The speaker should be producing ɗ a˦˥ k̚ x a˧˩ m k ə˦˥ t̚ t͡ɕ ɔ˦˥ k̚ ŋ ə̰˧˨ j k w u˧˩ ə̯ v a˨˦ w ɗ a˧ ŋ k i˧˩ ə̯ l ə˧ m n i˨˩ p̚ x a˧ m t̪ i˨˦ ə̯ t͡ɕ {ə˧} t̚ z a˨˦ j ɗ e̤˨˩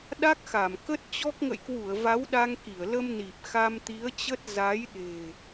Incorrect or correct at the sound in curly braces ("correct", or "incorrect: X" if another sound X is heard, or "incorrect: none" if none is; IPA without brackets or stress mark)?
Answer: incorrect: ə˦˥